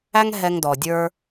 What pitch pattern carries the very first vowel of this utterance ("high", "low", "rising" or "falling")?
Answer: high